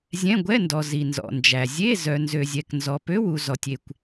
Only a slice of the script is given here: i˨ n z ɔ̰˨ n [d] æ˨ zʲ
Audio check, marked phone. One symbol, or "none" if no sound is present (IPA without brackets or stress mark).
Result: d͡ʒ